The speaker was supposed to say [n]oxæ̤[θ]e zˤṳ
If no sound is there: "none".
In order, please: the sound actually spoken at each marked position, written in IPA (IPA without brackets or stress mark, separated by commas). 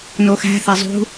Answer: n, θ